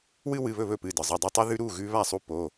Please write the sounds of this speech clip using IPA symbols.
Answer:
w ɨ˦ w ɨ˩˧˩ β ɵ˥˩ β ɵ˥˩ p ɨ˩˧˩ d ɨ˩ zˤ ɵ˩˧˩ dˤ ɵ˦ tˤ ʉ˦ ð ʉ˦ ɾ u˩˧˩ ɣ ʉ˦ β a˥˩ sˤ u˦ p o˩˧˩

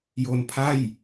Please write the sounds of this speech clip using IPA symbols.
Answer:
j o˧ n pʰ a˥˩ j

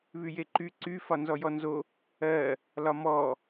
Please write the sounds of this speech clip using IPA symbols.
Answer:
β y j e ǃ y ǀ y f ɒ n z ɔ j ɔ n z o | ɜ | l ɒ m ɔ

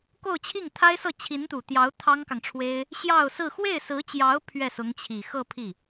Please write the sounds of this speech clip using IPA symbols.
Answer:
k o˥˧ ʊ̯ t͡ɕʰ i˥˩ ŋ t̪ʰ a˥ ɪ̯ s ɤ˥˩ t͡ɕʰ i˧˥ n t̪ u˨˩ t̪ j ɑ˧˥ ʊ̯ t̪ʰ ɑ˥ ŋ k ɑ˨ ŋ ʈ͡ʂʰ w e˥ ɪ̯ | ɕ j ɑ˥˧ ʊ̯ s ɹ̩˥˧ x w e˥˩ ɪ̯ s ɹ̩˧˥ t͡ɕ j ɑ˧˥ ʊ̯ pʰ ɥ ɛ˥˩ s ʊ˧˥ ŋ t͡ɕʰ i˨˩ x ɤ˥˧ pʰ i˥˩

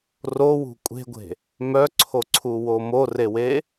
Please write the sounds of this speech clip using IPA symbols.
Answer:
r o w ṳ kʷʼ e̤ ɡʷ e̤ | m œ ǀʰ o ǀʰ u w o m o r e w e

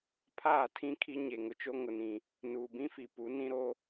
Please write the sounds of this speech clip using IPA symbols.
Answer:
pʰ aː˦˨ tʰ ĩ˦ kʰ i˦ ɲ e˨ ŋ ʊ˨ t͡ʃ o˦ ŋ ʊ˨ n ĩ˨ | n uː˨ b ĩ˦ f i˨ p u˨˦ n ĩ˦ ɾ o˦

